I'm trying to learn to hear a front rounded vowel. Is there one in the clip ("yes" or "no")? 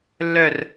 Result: yes